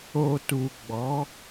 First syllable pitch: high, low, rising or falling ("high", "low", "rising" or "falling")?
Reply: low